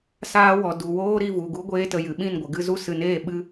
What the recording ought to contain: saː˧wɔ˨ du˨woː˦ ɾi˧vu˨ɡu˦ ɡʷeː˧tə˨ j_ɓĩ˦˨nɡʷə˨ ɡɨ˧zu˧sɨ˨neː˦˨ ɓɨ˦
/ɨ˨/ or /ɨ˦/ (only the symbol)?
ɨ˨